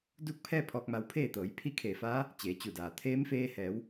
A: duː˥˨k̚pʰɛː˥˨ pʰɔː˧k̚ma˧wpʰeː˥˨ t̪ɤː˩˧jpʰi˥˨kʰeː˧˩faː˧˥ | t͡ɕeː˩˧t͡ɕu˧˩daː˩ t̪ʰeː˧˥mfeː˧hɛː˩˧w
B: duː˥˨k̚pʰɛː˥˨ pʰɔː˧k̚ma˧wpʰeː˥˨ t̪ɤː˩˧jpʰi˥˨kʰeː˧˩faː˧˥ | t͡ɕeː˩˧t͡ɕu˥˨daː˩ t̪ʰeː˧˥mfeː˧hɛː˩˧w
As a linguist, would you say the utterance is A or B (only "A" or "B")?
A